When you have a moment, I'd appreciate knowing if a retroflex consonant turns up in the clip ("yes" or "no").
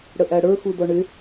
yes